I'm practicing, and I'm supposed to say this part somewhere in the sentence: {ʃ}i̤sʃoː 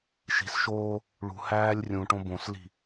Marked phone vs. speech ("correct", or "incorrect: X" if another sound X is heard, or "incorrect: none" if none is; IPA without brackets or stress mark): correct